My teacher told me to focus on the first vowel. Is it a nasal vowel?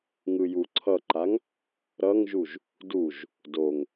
no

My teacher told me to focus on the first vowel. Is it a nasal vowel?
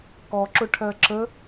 no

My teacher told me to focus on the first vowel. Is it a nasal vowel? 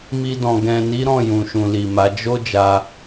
no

